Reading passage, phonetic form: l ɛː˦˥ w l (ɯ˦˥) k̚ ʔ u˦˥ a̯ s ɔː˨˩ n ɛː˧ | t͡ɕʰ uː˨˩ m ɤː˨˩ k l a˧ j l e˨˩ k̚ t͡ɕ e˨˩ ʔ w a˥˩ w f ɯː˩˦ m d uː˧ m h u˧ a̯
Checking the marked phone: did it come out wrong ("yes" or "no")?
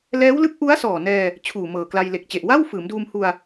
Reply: no